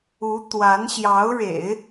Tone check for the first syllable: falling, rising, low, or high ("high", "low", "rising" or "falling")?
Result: rising